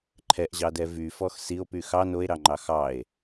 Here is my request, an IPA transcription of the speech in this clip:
ǃʰ ɛ ʔ ʑ ɑ d ɛ v y f ɔ x s i o̯ p y x ɑ n o e̯ ɾ ɑ ŋ͡ǃ ɑ x ɑ e̯

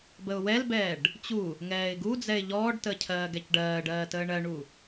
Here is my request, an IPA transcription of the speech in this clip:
b ə ʊ̯ w ɛ l b ɛː ɖ | t͡ɕ u | ŋ ɛː ɪ̯ ɡ u d͡z ɛ ɪ̯ ʎ ɔː ɖ t ə cʰ ɜː ɡ ɛ c ɖ ɜː ɖ ɜː t əː ɳ ɜ ɳ u

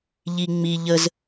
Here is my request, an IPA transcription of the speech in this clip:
ʎ i ŋ͡m i ʎ ə z

